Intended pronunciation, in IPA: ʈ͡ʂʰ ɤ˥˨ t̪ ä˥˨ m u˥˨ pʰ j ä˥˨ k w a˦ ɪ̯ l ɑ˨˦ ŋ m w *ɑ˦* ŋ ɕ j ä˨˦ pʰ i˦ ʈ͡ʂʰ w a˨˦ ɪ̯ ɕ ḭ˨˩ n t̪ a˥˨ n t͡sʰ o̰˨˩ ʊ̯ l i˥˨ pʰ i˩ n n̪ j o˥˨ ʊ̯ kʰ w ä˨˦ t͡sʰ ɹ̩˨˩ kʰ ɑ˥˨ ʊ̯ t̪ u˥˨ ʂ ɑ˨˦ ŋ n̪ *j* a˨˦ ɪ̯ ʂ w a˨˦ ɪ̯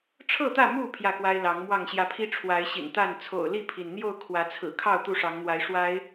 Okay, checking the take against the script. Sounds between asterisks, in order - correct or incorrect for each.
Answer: incorrect: ɑ˥˨, incorrect: w

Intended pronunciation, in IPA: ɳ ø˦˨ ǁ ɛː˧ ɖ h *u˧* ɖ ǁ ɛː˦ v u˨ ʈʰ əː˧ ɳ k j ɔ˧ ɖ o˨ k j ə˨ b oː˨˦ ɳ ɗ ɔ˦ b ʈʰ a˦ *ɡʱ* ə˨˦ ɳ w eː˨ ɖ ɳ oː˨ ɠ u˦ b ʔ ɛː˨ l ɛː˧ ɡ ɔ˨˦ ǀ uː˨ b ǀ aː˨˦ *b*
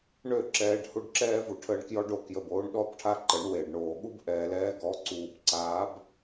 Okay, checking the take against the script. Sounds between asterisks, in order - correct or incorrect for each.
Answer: correct, incorrect: ǃ, correct

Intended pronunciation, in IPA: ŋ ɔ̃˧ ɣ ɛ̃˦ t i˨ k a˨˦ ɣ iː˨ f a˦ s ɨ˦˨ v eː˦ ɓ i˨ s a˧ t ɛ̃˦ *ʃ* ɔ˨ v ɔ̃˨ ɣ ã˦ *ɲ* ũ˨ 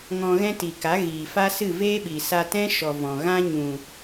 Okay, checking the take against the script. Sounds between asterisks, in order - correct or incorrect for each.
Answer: correct, correct

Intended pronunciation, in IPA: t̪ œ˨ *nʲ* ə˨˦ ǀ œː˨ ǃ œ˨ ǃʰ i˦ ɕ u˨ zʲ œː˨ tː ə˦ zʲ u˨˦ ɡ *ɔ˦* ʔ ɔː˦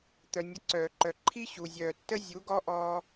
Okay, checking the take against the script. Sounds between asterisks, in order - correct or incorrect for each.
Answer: correct, correct

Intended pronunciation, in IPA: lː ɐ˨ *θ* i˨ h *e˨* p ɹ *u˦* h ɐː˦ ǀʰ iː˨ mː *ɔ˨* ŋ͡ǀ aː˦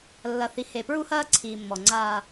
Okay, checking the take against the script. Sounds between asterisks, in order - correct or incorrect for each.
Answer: correct, correct, correct, correct

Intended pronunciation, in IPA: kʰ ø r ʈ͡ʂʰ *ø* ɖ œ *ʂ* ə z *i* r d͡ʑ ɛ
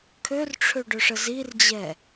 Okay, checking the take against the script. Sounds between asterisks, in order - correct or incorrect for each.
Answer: correct, correct, correct

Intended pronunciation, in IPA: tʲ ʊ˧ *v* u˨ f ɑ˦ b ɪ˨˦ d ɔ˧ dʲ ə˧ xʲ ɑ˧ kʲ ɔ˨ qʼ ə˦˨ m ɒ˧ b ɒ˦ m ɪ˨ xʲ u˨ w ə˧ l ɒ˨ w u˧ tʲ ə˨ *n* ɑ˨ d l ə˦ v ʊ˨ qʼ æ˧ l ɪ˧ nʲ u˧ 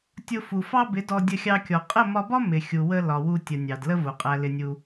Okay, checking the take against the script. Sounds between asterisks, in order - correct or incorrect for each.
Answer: incorrect: f, incorrect: nʲ

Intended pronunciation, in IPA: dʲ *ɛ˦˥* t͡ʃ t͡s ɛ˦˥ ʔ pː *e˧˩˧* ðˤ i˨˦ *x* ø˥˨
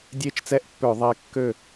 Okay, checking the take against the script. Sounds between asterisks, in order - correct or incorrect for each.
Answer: incorrect: e˦˥, incorrect: ø˧˩˧, incorrect: kː

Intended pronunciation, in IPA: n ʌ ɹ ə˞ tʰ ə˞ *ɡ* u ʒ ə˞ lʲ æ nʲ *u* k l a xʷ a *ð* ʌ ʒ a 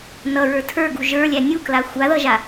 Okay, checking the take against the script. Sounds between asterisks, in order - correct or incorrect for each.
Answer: correct, correct, correct

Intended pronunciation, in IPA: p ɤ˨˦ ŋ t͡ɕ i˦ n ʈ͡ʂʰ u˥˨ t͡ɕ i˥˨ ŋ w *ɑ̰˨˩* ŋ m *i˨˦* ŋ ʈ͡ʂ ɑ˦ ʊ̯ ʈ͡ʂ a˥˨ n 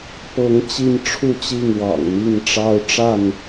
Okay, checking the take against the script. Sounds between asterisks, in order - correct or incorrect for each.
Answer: correct, incorrect: i˥˨

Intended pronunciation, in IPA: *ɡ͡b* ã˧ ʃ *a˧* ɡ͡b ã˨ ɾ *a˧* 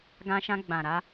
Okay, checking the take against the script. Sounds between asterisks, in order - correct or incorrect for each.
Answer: incorrect: ɡ, incorrect: ã˧, correct

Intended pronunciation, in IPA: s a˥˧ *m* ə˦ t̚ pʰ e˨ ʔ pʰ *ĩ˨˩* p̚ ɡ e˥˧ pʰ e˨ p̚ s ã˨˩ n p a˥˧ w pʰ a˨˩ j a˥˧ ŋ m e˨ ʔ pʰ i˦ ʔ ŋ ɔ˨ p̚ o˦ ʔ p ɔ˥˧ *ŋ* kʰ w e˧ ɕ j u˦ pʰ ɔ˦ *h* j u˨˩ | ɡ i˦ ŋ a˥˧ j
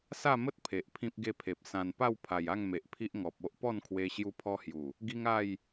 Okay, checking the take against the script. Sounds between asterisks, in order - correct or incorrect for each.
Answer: correct, incorrect: ĩ˦, incorrect: n, correct

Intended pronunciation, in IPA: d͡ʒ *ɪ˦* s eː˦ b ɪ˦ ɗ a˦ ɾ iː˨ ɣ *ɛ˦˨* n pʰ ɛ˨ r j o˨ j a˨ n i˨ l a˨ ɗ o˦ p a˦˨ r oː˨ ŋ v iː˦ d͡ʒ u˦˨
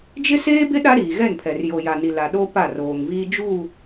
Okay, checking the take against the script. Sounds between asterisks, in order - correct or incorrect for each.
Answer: correct, correct

